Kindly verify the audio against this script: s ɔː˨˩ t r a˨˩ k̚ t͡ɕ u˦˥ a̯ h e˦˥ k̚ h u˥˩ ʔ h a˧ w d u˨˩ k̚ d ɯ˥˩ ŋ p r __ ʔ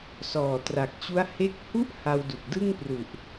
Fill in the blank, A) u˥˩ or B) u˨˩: B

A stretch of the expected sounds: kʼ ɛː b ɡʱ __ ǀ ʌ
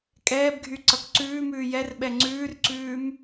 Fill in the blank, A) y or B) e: A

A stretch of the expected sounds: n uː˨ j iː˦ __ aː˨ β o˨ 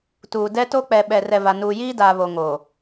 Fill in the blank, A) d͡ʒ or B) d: B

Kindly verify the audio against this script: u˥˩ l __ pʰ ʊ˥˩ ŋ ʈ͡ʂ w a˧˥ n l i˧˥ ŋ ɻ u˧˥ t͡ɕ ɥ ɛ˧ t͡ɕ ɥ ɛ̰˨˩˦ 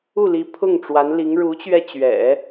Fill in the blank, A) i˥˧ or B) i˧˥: B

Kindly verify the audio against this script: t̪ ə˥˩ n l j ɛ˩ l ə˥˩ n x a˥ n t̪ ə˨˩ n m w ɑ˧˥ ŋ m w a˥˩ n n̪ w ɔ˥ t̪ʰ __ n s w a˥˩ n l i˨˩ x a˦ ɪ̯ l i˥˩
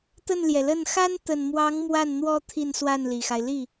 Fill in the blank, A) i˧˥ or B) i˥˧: B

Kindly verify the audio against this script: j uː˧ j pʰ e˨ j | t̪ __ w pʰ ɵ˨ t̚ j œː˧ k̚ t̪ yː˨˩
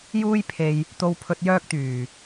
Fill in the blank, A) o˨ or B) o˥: A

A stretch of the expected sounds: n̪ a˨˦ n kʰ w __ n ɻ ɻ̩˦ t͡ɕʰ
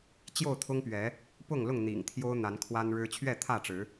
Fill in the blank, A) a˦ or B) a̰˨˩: A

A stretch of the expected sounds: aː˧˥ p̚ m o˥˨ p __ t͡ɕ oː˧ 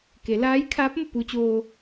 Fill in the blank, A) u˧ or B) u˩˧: A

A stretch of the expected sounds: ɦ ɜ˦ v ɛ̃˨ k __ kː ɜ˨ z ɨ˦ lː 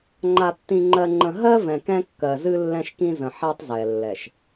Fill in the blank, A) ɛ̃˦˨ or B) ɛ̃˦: B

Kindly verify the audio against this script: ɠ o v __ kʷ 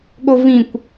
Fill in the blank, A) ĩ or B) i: A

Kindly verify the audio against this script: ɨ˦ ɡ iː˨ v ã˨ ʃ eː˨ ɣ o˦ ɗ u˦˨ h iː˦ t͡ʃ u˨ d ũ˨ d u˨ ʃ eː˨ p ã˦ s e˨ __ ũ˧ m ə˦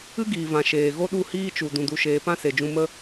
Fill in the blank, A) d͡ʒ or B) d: A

